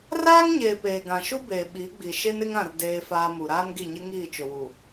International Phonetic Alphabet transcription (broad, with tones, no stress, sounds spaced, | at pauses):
r aː˦ ŋ ɲ eː˨ p eː˨ ɡ ã˨ ʃ u˦ b eː˨ ɓ i˨˦ ɡ͡b i˨ ʃ e˦ n ɪ˦ ŋ ã˦˨ r d eː˦ f aː˦ m u˨ ɾ aː˦ n ɡ i˦˨ ɲ ɪ˦ ŋ iː˦˨ t͡ʃ ʊ˨ w u˨